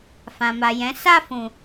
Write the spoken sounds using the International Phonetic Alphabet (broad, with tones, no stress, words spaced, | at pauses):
fã˨ma˨jɛ̃˨˦ sa˦˨fũ˨